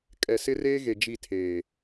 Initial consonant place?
velar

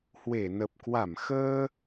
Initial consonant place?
glottal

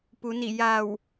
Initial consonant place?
labial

